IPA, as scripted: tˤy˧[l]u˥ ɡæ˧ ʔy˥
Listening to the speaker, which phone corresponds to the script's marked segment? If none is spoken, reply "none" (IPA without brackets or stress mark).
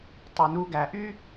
n